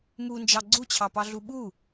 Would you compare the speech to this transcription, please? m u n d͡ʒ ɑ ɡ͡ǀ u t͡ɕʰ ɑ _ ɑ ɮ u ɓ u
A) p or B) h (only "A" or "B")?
A